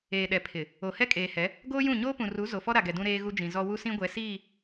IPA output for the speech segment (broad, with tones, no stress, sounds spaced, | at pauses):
eː˨ ɗ ɛ˨ pʰ ɪ˨ | o˨ h ɛ˦ kʼ eː˨ h ɛ˨˦ | ɡ oː˦ j ũ˦˨ ɲ oː˦ p ũ˨ r u˨˦ z o˨ f ɔ˦ ɾ a˨ ɡ ɛ˨ d ũ˦ ɾ eː˦ ɣ u˦ d͡ʒ ĩ˨ z ɔ˦ w u˦ s ĩ˦ ɡʷ ɛ˨˦ s iː˦˨